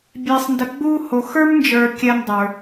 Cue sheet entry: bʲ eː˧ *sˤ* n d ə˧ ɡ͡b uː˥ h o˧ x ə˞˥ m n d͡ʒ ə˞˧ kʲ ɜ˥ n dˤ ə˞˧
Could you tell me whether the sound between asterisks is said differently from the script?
no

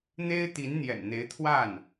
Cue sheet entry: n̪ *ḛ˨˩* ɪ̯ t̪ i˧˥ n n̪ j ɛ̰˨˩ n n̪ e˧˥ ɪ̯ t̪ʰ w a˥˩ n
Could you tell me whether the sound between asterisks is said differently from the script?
yes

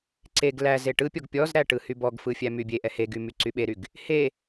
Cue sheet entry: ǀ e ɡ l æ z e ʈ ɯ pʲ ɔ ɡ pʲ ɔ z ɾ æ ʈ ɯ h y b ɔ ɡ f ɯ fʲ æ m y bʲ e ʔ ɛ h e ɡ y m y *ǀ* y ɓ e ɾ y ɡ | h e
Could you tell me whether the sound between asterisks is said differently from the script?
no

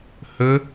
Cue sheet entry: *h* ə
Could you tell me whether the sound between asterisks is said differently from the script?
no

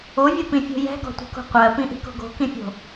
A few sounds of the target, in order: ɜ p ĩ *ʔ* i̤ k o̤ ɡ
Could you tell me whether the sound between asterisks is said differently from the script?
no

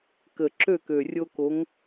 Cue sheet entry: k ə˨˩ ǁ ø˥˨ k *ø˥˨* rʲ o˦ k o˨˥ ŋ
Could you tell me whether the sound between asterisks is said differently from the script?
yes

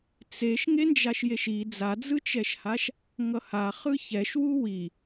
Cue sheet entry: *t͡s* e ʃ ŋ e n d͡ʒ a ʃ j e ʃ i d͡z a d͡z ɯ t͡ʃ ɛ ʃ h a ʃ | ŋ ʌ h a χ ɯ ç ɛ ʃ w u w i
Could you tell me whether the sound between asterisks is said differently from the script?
no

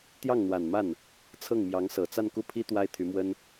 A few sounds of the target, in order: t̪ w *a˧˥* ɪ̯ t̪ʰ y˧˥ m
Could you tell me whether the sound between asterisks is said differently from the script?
yes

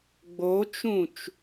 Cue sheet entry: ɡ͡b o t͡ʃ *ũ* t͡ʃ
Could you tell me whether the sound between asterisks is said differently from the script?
no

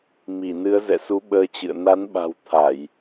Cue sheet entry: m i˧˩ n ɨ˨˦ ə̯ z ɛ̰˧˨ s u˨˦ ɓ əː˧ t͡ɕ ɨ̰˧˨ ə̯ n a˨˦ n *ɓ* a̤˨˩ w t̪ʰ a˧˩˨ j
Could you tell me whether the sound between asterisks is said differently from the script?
no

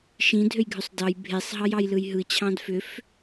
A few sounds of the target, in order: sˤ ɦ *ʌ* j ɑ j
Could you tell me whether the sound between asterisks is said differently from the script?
yes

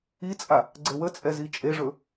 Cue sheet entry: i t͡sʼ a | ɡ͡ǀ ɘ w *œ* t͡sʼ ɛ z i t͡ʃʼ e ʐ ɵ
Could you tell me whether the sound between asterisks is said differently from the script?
yes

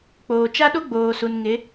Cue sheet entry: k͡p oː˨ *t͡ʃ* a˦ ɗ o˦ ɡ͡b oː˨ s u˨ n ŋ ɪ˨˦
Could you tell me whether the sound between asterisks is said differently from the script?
no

